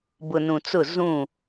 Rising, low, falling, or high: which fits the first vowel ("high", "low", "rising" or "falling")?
low